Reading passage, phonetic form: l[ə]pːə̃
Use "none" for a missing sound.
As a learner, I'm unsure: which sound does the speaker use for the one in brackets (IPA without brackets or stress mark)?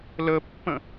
ə